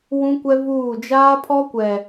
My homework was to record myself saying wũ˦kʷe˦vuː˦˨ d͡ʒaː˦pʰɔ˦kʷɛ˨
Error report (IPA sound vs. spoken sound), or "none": e˦ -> ɛ˦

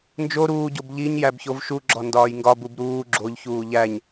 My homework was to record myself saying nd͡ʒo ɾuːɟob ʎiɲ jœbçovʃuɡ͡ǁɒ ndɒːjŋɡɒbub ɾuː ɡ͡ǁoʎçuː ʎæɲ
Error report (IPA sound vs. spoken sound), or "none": œ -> æ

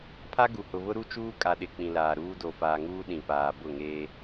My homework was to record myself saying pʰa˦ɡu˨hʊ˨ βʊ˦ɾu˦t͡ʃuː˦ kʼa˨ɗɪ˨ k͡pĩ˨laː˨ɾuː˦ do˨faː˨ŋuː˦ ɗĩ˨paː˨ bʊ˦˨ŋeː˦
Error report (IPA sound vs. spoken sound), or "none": none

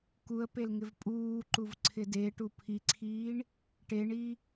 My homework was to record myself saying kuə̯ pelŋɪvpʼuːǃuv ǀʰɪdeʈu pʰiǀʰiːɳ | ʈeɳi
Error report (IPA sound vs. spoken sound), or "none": none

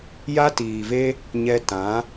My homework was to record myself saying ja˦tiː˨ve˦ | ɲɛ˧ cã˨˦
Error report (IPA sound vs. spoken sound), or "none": c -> t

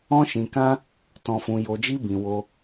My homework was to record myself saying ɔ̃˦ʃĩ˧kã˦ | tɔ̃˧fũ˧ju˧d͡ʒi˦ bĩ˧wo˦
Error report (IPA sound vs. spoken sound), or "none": u˧ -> o˧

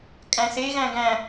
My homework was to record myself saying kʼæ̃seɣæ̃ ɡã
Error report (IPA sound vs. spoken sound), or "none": ã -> æ̃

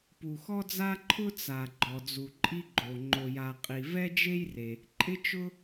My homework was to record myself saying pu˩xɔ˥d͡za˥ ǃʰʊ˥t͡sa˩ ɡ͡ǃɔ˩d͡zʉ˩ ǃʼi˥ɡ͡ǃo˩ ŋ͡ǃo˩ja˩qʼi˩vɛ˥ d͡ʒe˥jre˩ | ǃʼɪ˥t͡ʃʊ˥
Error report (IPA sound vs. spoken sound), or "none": ʉ˩ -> u˩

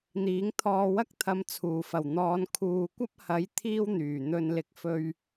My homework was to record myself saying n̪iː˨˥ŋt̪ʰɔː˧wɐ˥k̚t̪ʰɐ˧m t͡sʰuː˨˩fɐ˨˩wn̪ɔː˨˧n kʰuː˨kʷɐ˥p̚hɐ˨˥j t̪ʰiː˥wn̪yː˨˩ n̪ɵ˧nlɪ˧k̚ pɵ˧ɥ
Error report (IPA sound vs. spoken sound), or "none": p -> f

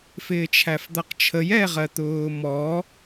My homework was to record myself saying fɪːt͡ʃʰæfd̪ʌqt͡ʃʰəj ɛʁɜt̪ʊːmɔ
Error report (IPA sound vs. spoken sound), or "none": none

